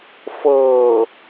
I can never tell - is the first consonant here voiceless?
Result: yes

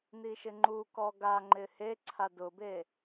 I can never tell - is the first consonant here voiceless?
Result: no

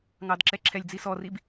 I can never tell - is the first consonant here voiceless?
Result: no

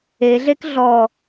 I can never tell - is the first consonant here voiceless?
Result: no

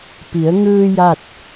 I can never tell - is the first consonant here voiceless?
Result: yes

